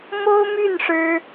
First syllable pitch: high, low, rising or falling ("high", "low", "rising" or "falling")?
high